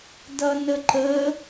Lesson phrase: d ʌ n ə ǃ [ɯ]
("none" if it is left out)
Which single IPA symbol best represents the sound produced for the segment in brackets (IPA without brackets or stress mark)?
ə